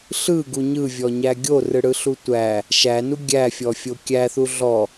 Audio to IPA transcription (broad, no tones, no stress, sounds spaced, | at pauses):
ɬ ɯ ɡ u ɲ ɯ vʲ ɔ ɲ æ ɡʲ o r ɯ ɽ ɯ ɬ u tʷ æ | ʃ æ n u ɡʲ æ fʲ ɔ fʲ o kʲ æ θ u ɮ ɔ